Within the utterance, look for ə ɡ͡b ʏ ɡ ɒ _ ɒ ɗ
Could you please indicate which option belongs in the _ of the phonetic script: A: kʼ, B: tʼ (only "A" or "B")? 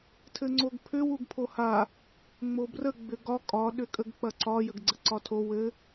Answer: A